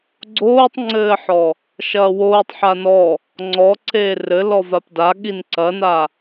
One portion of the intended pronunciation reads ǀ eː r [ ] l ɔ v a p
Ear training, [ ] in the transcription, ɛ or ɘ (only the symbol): ɘ